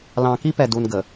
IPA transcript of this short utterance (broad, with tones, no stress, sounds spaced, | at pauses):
l ɑ̃˨ k i˦ p ɛ˨ d u˨ n ɡ ə˨